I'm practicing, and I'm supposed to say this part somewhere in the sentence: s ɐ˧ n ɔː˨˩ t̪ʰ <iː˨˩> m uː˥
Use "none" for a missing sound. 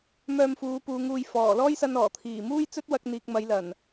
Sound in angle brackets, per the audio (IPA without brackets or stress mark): iː˨˩